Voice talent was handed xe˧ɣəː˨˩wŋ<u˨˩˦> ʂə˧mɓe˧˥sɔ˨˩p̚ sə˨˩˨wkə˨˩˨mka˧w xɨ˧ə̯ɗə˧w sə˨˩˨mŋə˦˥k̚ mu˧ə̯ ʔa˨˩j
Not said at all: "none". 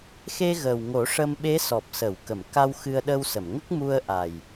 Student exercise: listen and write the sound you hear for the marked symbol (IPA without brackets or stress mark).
o˨˩˦